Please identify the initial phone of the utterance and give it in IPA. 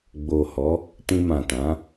ɡ͡b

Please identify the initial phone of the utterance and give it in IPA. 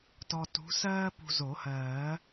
t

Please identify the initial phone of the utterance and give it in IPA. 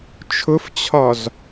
t͡ʃʰ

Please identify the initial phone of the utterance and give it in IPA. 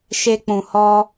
ʃ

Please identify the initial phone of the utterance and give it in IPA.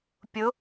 pʲ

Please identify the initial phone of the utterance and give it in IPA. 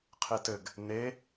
qʰ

